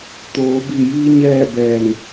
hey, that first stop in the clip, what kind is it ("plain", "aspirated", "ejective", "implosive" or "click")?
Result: plain